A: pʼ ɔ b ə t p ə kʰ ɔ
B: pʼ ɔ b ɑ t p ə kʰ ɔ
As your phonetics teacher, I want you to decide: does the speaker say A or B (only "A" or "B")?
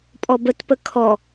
A